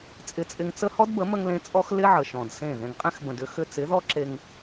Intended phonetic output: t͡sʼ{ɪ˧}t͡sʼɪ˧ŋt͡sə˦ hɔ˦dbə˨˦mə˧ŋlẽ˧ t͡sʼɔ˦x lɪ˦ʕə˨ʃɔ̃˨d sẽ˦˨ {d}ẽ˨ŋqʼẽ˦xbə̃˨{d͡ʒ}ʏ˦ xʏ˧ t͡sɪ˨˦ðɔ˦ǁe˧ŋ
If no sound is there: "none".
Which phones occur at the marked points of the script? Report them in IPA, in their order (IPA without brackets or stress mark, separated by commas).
ɪ˧, ð, d